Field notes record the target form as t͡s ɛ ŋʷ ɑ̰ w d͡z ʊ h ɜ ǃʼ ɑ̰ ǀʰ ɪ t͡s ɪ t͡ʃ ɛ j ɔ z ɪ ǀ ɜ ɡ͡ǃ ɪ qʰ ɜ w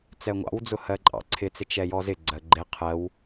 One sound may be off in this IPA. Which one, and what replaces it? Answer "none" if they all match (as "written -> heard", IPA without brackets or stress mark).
ǀ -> ɡ͡ǀ